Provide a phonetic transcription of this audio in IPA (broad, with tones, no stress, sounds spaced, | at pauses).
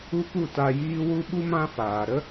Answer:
u˦ p u˦˨ t a˧ j iː˦ w u˦ ɓ u˦ m ã˦ f aː˨ ɾ ə˦